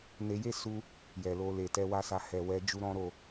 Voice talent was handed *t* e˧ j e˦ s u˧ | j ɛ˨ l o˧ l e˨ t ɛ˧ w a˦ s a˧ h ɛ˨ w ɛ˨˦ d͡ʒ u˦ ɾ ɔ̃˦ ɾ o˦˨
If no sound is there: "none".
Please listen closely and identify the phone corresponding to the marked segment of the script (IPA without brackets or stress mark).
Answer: n